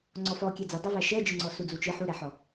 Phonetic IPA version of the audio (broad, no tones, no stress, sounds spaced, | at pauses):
ŋ͡ǀ ɔ f ɔ kʲ ɛ d͡z ɛ dˤ ɛ v æ ʃ ɛ d͡ʒ ɨ ŋ͡ǀ ɔ s u d͡z u t͡ʃ ɨ ħ u ɾ ɛ ħ ɔ